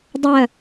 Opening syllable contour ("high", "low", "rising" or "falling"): falling